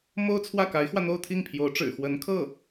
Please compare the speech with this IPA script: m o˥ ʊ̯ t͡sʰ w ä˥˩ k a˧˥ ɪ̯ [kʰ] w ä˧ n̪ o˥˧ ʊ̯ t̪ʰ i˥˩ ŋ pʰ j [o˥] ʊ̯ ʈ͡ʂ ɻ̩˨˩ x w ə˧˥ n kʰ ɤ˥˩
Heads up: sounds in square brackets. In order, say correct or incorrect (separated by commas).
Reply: incorrect, incorrect